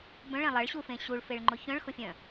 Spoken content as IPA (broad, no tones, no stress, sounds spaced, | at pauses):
b œ̃ ɭ ɛ̃ lˠ ɐ ɭ ɕ u f ẽ ɕ u ɭ f e ɭ ŋ͡ǃ ʊ ç œ̃ ɭ x ʊ fʲ œ̃